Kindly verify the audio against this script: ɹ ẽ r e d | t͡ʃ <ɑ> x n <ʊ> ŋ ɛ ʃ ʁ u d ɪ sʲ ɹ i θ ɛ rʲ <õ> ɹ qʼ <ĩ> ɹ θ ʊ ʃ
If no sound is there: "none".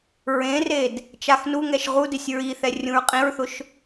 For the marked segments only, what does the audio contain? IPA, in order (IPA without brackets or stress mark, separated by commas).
a, u, ũ, ĩ